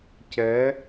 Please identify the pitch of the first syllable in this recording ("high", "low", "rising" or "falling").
rising